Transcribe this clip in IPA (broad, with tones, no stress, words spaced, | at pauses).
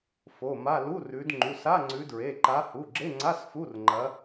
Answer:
fo˩˧˩ma˧˥˧ lu˧˥˧rʉ˨˦d ŋ͡ǃu˩˧˩sa˧˥˧ŋ͡ǀʉ˨˦dɹe˩˧˩ ǃa˨˦hu˩˧˩ɡ͡ǁe˧˥˧ŋ͡ǀa˧˥˧s fu˧˥˧rŋ͡ǃɐ˨˦